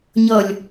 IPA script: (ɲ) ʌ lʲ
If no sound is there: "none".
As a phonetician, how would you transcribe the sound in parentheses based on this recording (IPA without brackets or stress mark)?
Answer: ɲ